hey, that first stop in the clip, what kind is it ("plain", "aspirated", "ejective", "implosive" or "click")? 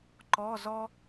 click